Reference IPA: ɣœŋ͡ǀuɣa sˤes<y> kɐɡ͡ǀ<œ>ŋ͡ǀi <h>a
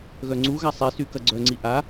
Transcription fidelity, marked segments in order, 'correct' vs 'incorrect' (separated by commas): correct, correct, incorrect